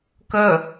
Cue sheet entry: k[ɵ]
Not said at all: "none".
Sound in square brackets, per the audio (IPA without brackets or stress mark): ɵ